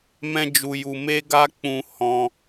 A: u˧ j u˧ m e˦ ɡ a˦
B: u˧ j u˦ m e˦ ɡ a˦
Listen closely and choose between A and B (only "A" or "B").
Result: A